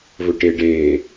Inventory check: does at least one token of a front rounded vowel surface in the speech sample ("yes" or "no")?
no